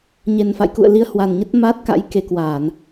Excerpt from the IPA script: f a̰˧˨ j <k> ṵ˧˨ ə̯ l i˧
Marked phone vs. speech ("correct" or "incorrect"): correct